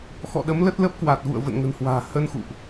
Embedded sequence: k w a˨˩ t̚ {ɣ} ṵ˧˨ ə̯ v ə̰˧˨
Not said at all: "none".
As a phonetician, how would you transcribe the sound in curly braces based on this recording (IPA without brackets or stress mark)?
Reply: ɣ